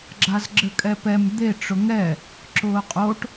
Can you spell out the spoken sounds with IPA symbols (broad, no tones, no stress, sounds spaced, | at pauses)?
ɡ͡ǁ a z ɡ͡ǁ ɘ kʼ ɛ p ɛ m d̪ e ʈ͡ʂ ʊ ŋ ɛ | ǁ ʊː qʼ o ʈ